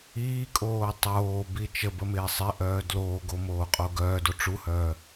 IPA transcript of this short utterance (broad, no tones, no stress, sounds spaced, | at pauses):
iː kʼ oː tˤ oː b i t͡ʃ ə b ə m ɪː sˤ ɪ ʔ œː d l oː ɡ o m oː qʼ o ɡ œː d o ʈ͡ʂ u h œː